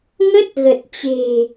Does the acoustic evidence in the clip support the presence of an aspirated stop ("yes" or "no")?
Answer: no